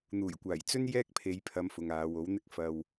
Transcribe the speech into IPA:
n̪ uː˨˩ j kʷ aː˨˩ j t͡s ɵ˥ n j ɛː˥ k̚ pʰ e˨˧ j pʰ ɐ˨˧ m f ʊ˨ ŋ aː˨˧ w o˨˥ w n̪ ɪ˥ k̚ f ɐ˧ w

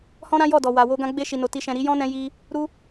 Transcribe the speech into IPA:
h ɔ̃˦ ɾ ã˦ j ɔ˦˨ d ɔ˨ w a˨ w o˧ ɡ ã˧ ɡ͡b e˧ ʃ i˨ n o˨ t i˨ ʃ ɛ̃˨ ɾ i˨˦ j ɔ̃˦ n ɛ̃˧ j i˧ | ɾ u˦

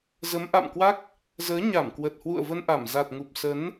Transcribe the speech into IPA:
z ə˨˦ m ʔ a̰˧˨ m k w a˦˥ k̚ | z əː˨˦ ɲ a˧˩ m k w ə˨˩ t̚ h w ṵ˧˨ ə̯ v ə˧ n ʔ a˧˩ m z a˨˩ t̚ ŋ u˨˩ p̚ s ə˨˦ n

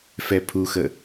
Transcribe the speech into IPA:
f ɛ pʰ u x ə

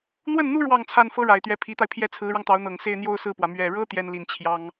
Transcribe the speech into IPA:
n̪ w ə˥˩ n n̪ u˥ ɻ w ɑ˥˧ ŋ t͡sʰ a˥˩ n f ɤ˥ ɻ a˨˩ ɪ̯ t̪ ɥ ɛ˧˥ pʰ i˧˥ t̪ a˧ ɪ̯ pʰ j ɛ˥˩ t͡sʰ ɹ̩˧˥ ɻ ɑ˧ ŋ t̪ ɑ˧˥ ʊ̯ n̪ ɤ˨˩ ŋ s e˥˧ ɪ̯ n̪ j o˥˧ ʊ̯ s ɹ̩˥˩ p w ä˩ m ɥ ɛ˨˩ ɻ ɤ˥ t̪ j ɛ˥ n l i˧˥ n t͡ɕʰ j ɑ˥ ŋ

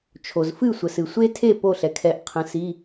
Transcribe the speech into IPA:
t͡ʃʰ o˩ z f ɨ˥˩ sʷ ə˩ s ɨ˩ sʷ e˦˥ tʰ e˥˩ p o˥˩ ɬ ɛ˩ kʰ ɛ˨˦ ʔ qʰ ə̃˨˦ s i˧˥˧

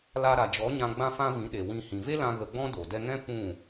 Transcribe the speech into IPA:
l a˧ ɾ a˨ d͡ʒ ɔ˨˦ ɲ ã˧ ɡ͡b ã˦ f ã˦ v ĩ˨˦ ɗ e˨ w ĩ˧ h ĩ˨ v e˦ l ã˧ ɣ ə˧ ɡ͡b ɔ̃˦ d o˨ d ɛ˧ ŋ ɛ̃˦ p ũ˦˨

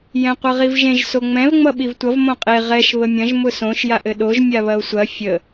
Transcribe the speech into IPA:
j ɛ̃ qʷ ʌ ʁ i v ʒ ẽ ʒ s o ŋ͡m ɛ̃ v ŋ͡m ʌ ɓ i v tʷ ʌ v m õ qʼ e ʁ ɛ ʃ β ə mʲ ɐ̃ ʒ m ʊ s õ ʃ j a ʔ ɘ ɗ o ʒ mʲ a β ɐ o̯ sʷ ɐ fʲ ə

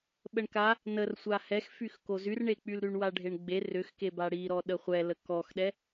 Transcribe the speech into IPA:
ɓ ə ɳ k a | n ə r sʷ a h ɛ x f y x k o z y r ɳ e k͡p y l ɾ y ɳ w a ɖʱ e ɳ ɡ͡b e r ʏ x k e b a ɽ i ɾ ɔ ɗ ə χʷ ɛ l ə k ɔ x ɗ ɛ

